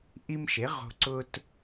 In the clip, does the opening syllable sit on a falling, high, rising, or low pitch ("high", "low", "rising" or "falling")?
high